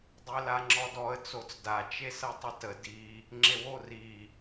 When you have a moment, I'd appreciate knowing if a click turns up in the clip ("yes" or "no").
yes